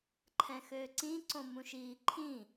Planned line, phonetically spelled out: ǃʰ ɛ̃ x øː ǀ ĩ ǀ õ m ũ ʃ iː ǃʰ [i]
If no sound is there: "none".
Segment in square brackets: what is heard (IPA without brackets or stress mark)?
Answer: ĩ